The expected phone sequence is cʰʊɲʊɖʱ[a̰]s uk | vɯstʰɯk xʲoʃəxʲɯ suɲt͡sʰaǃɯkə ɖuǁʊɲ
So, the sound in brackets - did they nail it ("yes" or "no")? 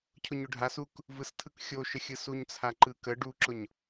no